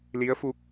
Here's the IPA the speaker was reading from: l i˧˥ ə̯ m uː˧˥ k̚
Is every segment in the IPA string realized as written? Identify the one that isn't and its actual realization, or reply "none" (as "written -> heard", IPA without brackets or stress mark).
m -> f